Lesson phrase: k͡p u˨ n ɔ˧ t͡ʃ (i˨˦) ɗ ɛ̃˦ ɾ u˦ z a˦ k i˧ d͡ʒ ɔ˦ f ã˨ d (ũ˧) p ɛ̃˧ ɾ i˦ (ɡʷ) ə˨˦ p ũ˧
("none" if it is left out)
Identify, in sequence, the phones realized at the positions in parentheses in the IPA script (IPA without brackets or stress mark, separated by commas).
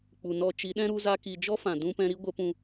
i˨˦, ũ˧, ɡʷ